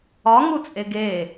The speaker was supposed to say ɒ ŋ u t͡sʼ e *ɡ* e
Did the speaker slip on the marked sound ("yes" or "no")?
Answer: no